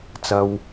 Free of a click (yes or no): yes